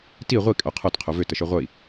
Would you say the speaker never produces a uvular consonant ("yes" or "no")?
no